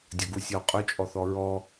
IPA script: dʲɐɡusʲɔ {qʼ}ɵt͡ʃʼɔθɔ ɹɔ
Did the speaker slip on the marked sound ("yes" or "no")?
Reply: no